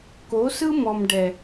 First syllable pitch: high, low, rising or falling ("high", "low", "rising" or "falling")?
rising